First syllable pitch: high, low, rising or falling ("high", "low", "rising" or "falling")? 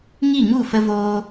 falling